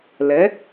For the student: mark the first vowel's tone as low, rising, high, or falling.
rising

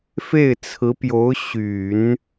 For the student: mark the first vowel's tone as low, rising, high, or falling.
falling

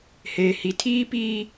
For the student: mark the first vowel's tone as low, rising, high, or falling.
low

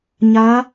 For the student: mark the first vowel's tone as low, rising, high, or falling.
rising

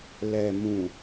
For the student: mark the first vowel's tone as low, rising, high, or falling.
low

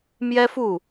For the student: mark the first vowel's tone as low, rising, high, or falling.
high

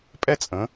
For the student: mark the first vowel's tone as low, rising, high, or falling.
high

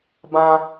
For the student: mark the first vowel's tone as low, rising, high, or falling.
high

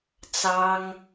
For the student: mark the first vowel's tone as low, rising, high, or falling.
high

